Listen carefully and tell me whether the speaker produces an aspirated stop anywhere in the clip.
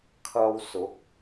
yes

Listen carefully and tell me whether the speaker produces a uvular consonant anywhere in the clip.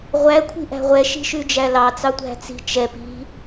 yes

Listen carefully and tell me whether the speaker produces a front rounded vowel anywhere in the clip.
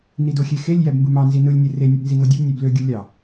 yes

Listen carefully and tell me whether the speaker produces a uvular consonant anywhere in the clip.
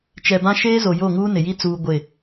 no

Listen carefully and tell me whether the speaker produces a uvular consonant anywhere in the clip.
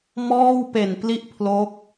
no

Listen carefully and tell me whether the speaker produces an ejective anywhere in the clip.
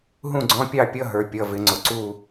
no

